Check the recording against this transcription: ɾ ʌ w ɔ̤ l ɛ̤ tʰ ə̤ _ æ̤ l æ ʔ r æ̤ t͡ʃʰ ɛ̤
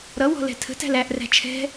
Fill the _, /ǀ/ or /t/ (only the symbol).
t